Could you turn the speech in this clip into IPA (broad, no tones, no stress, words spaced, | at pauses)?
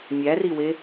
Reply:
mʲæriwe